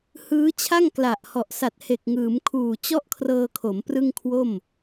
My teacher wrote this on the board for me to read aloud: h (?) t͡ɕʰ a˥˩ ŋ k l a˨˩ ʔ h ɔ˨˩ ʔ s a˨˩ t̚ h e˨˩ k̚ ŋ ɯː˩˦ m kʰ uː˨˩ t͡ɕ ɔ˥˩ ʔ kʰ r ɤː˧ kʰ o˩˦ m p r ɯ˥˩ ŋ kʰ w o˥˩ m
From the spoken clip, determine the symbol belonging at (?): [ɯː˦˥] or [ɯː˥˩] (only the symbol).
ɯː˦˥